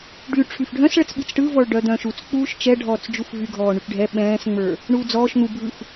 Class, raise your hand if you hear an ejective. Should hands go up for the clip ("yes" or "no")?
no